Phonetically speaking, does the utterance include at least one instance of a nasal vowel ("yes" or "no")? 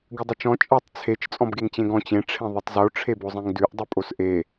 yes